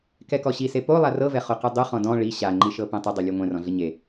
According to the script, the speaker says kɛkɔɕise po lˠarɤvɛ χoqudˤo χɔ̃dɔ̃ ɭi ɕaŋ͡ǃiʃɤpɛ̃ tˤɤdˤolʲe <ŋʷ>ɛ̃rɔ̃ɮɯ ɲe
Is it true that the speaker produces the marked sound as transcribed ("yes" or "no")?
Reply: yes